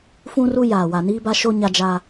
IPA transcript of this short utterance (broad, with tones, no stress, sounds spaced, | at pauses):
f ũ˦ r u˦ j aː˨ w a˨ n iː˦ b a˦ ʃ o˦ ɲ a˦ d͡ʒ a˦